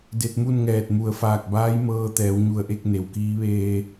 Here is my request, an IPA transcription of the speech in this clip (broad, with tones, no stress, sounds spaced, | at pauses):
d e˧ t̚ m u˥˨ n ŋ ɛː˧˩ t̚ m u˩ ə̯ f aː˧˩ k̚ b aː˧˥ j m ɤː˧ t̪ ɛː˩˧ w ɲ u˧˩ ə̯ ʔ e˥˨ k̚ n e˩ w k iː˧˥ ʋ eː˧